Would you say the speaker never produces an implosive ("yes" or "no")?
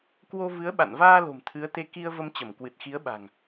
no